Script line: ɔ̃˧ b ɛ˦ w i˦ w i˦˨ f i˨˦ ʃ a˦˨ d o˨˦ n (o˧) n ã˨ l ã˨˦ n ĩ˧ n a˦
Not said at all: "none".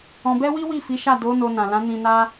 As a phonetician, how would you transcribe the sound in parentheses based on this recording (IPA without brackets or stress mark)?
o˧